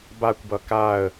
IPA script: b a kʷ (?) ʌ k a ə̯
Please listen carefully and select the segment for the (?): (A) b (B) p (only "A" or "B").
A